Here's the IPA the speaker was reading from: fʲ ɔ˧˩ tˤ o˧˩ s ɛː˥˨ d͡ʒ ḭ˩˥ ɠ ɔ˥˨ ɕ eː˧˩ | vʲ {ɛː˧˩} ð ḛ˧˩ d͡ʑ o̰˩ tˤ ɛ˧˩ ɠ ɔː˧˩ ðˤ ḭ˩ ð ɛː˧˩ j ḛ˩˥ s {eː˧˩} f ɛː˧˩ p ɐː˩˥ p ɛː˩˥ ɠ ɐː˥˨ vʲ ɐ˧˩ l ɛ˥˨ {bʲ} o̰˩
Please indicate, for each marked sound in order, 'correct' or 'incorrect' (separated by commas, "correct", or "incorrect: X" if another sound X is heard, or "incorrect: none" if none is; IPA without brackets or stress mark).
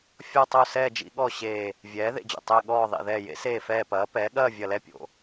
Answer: incorrect: ɛː˩˥, correct, incorrect: pʲ